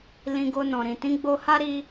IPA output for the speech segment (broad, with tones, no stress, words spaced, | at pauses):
lĩ˧ɡo˧nɔ̃˨ɾĩ˨ tĩ˨˦ɡ͡bo˧ha˦ɾi˧